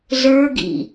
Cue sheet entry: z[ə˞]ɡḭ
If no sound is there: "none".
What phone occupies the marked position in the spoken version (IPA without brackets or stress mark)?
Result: ə˞